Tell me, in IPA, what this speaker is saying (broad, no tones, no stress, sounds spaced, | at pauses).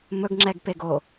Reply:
m ɵ ɡ ŋ͡ǁ ɛ ɡ p e ɡ o